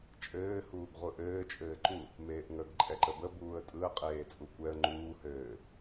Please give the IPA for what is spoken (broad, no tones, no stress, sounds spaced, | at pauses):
t͡ʃʼ ɘː h uː ɡ ʁʷ ɯ ʔ ɘː t͡ʃʼ ɘː ǃ u | m eː ʔ ŋ ə ɡ ǃʼ ɛ ǃ ə b ə b uː ə̯ tʼ ɯ ə̯ qʼ eː t͡sʼ u kʷ ɛ ə̯ ŋ͡ǃ uː h ɘː